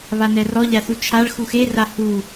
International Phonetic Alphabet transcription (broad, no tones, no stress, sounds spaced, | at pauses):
β a n ɛ r ɔ ʎ a θ u t͡ʃʰ a ɭ x u x e r a h u